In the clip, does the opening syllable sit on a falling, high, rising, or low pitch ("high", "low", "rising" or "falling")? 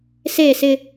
falling